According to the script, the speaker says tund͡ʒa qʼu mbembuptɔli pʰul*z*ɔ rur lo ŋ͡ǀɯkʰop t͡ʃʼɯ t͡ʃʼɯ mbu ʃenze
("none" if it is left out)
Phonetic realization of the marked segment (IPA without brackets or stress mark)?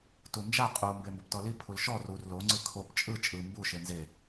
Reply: ʃ